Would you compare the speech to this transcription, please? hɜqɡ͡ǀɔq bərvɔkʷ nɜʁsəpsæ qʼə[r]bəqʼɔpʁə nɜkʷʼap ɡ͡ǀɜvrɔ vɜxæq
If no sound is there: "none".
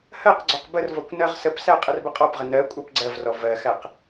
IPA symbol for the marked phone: r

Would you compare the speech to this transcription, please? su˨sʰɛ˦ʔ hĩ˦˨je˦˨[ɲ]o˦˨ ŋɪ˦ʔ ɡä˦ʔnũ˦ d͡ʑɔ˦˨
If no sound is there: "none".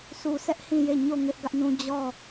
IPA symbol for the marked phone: ɲ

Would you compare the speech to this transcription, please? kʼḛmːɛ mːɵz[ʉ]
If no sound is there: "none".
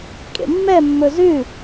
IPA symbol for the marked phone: ʉ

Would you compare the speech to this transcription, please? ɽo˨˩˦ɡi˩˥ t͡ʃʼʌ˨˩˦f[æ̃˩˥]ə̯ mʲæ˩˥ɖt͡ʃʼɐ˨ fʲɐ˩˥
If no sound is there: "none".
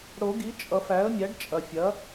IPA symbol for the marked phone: æ˩˥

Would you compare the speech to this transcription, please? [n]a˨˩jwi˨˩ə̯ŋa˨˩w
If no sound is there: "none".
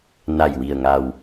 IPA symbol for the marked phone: n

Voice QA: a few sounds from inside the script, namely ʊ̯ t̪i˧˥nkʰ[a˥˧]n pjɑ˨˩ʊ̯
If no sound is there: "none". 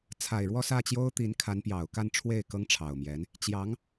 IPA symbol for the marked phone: a˧˥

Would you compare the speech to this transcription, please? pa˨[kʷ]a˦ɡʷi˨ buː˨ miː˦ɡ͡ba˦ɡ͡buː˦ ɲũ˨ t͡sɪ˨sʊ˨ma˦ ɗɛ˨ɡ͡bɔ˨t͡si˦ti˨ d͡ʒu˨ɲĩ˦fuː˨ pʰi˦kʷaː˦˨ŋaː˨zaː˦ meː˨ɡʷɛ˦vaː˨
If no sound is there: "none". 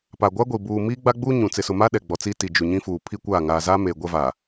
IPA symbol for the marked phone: ɡʷ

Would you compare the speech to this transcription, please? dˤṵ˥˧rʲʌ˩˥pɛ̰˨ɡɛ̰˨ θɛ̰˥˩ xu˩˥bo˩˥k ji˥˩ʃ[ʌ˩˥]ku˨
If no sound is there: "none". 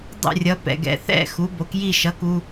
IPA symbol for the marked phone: ʌ˩˥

